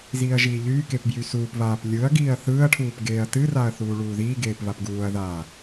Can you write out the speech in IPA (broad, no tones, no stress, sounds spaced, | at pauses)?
z iː ɐ̯ ʒ iː ʎ yː k e p b j y s uː p β aː p lʲ ɯ ɐ̯ ɡ iː ɐ̯ θ ɯː ɐ̯ ʈʰ uː p ɡ eː ɐ̯ t ɨ r a ɐ̯ θ uː ɭ uː ð iː ɡ eː p β a p ɡ uː ɐ̯ ð aː